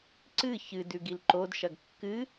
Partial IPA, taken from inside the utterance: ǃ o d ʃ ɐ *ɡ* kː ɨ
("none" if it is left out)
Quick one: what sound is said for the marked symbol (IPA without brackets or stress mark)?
ɡ